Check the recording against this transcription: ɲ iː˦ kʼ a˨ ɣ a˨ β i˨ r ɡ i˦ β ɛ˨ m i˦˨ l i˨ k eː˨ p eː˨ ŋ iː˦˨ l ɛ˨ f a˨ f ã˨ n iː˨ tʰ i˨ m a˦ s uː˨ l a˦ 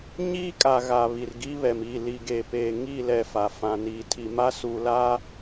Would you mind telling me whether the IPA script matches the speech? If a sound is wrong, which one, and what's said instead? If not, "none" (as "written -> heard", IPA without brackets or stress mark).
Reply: k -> ɡ